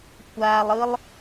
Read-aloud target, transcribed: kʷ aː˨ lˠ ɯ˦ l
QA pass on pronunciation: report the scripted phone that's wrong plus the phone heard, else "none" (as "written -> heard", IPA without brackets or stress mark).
l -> lˠ